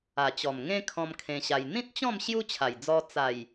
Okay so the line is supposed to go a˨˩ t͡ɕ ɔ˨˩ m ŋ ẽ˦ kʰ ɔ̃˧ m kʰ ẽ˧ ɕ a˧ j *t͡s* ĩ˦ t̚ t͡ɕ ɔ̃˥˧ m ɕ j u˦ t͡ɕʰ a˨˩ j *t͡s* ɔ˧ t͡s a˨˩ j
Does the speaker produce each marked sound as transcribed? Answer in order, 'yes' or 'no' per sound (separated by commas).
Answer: no, no